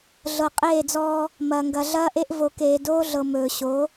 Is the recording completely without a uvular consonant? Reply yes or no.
no